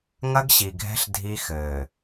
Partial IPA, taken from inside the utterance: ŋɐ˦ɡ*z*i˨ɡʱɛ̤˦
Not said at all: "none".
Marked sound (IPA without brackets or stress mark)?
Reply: ɕ